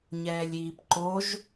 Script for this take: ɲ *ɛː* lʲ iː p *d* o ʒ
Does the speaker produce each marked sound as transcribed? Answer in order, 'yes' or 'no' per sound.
yes, no

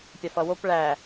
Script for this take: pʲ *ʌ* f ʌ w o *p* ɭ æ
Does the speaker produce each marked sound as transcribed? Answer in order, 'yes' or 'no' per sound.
no, yes

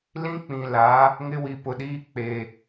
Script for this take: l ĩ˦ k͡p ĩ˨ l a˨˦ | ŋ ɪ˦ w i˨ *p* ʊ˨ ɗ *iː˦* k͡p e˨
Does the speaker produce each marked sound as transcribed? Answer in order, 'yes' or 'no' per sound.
yes, yes

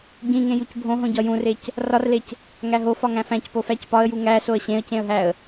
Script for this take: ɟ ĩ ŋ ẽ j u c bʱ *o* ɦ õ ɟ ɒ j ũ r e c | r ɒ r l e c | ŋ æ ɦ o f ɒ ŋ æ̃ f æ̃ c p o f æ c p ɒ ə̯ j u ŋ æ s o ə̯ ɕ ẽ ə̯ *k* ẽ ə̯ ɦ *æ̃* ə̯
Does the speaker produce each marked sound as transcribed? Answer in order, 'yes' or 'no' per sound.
no, no, no

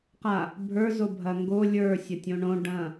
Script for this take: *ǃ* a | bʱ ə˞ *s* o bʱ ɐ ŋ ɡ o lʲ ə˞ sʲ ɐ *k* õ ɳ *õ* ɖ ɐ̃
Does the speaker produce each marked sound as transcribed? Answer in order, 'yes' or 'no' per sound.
no, no, no, yes

